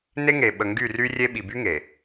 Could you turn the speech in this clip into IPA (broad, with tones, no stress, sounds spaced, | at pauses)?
n e˦ ŋ e˨ ɓ ə˨ ŋ ɡ y˦˨ r y˦ rʲ e˦ ɓ i˨ b y˦ ŋ e˨